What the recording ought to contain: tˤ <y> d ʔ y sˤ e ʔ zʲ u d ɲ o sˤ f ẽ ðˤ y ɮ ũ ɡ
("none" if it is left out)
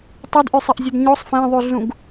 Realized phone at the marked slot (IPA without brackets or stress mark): y